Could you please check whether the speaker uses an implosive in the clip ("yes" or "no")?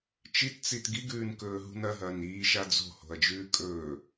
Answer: no